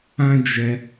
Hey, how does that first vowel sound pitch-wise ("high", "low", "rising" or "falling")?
high